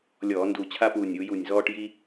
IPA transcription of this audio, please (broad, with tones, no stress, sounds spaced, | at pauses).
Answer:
lʲ ɔː˧˩˧ n d u˧˩ t͡ɕʰ a˥ p uː˧˩ nʲ u˩˧ j u˧˩ nʲ z ɔː˥ ʈ j i˥